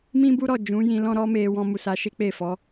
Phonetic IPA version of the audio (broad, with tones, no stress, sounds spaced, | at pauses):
m ĩ˦ b u˦ ɾ ɔ˦˨ d͡ʒ ũ˨˦ j ĩ˧ l ɔ̃˦ ɾ ɔ˦ m e˧ w ɔ̃˧ m u˨ s a˧ ʃ e˦ k͡p e˦˨ f ɔ˨˦